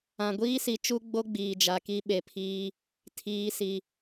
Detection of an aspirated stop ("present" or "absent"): present